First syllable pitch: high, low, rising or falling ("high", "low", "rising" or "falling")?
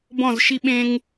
falling